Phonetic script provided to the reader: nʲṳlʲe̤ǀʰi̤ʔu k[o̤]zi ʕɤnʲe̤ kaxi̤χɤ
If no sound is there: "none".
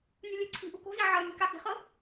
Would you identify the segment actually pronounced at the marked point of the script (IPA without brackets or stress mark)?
o̤